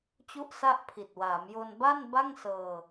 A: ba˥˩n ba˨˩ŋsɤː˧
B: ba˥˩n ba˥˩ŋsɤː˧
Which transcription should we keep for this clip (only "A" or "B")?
B